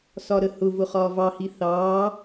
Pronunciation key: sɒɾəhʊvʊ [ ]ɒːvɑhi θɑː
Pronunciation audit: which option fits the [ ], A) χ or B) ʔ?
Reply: A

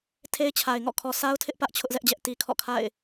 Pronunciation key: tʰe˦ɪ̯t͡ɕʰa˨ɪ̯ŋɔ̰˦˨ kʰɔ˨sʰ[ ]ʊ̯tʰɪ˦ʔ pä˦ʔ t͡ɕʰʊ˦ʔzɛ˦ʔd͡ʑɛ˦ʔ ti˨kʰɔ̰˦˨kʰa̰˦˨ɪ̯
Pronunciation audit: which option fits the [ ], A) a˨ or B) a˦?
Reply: B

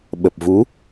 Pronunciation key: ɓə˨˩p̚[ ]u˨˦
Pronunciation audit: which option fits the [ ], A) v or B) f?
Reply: A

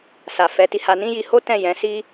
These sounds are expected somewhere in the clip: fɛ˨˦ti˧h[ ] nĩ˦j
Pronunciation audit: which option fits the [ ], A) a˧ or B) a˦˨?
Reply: A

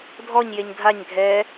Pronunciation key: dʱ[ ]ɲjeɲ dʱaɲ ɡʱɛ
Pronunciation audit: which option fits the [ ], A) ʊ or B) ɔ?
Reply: B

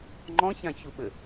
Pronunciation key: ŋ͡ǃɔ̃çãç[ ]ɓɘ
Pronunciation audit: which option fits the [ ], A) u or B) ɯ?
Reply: A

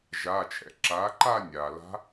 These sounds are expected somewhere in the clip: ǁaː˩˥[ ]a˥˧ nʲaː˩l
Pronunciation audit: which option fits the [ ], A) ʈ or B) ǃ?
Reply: B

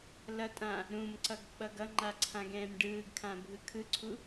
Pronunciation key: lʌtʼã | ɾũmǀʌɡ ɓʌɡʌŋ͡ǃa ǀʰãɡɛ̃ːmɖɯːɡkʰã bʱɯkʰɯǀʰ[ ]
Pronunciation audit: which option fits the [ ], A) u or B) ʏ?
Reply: A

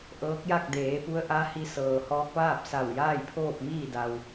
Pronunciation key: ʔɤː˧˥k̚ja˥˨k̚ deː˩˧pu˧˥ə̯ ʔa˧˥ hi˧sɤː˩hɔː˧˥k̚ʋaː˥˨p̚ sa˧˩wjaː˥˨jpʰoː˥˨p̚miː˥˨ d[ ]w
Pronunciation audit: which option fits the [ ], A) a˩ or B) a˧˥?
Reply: A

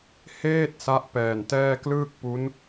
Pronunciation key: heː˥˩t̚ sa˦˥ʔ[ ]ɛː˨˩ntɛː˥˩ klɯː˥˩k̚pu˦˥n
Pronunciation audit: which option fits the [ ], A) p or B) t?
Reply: A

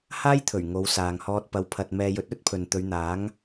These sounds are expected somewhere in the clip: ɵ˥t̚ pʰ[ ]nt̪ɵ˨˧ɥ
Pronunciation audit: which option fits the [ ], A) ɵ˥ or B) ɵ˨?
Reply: B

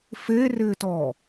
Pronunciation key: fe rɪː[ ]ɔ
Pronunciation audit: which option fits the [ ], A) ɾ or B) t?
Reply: B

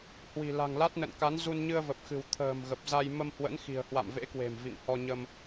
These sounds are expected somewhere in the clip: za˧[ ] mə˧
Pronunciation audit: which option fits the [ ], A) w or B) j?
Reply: B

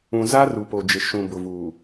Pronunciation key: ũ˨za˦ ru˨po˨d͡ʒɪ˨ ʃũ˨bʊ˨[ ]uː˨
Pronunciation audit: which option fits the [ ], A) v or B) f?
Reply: A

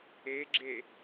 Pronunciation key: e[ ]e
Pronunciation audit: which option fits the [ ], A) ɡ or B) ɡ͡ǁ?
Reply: B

